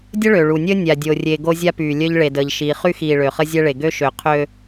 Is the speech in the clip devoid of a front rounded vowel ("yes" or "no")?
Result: no